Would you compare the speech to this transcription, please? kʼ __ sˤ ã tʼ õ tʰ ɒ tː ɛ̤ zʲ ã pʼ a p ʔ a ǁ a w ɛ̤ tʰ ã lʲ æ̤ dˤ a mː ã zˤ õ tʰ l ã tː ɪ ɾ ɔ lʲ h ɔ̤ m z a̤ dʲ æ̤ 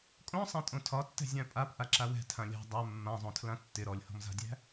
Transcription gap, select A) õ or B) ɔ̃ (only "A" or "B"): A